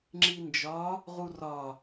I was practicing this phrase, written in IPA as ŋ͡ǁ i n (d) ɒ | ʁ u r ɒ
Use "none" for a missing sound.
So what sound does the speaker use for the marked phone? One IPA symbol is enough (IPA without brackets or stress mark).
d͡ʒ